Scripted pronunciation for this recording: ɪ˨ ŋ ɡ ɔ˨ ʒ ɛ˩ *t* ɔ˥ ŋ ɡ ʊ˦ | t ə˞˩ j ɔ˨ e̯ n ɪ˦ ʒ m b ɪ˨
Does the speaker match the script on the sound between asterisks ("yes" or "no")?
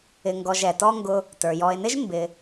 yes